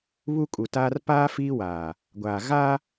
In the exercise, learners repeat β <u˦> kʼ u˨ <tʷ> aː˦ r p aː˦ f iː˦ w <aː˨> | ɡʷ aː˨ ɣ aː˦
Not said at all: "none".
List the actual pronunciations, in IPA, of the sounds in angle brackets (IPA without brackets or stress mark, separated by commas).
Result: u˦, t, aː˨